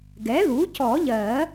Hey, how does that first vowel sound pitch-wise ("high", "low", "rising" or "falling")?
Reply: rising